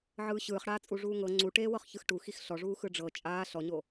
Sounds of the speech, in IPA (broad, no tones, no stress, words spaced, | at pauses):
ʕɯːɕɯːχɽaːt͡sʼu ʐuːŋɤ ŋ͡ǀuʈeːwɤχ çɯxʈuxix ɬɔʐuː xɯɖ͡ʐɤ t͡ʃʼaː ɬɔɲo